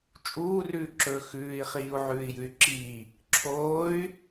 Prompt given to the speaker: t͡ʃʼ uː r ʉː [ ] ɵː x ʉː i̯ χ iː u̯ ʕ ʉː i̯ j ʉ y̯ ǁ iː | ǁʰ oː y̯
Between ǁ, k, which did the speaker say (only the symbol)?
ǁ